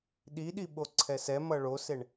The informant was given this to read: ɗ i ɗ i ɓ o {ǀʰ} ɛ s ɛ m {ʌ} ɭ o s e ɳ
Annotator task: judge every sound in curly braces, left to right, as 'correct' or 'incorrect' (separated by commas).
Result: correct, correct